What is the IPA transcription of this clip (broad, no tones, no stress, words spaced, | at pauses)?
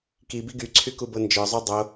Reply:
ki biɡyǀʰy kubɤnd͡ʒə˞zˤu dˤo